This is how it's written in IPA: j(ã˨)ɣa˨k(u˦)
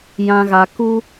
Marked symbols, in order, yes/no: yes, yes

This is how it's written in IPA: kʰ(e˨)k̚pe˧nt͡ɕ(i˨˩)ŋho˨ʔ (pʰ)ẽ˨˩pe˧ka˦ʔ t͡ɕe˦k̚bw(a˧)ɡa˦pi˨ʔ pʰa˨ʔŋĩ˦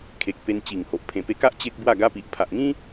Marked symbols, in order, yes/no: yes, yes, yes, no

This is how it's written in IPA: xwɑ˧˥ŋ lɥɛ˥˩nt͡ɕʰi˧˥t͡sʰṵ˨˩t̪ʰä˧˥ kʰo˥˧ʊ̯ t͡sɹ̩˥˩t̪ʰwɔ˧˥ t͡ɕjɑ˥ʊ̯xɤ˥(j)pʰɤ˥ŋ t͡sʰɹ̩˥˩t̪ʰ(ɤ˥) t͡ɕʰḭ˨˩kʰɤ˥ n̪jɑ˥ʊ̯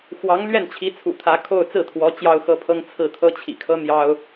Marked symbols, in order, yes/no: no, yes

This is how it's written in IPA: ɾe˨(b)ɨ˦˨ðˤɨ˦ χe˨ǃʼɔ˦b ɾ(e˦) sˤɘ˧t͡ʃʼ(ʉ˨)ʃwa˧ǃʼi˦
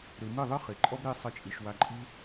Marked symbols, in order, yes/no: no, yes, no

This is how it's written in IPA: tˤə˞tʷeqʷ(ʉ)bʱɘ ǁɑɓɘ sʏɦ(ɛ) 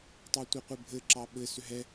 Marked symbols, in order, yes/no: no, yes

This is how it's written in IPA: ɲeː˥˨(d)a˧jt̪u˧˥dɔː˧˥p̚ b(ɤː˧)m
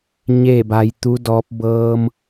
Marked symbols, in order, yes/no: no, yes

